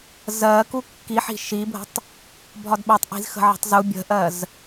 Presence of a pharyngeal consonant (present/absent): present